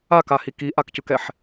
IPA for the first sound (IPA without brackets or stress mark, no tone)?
a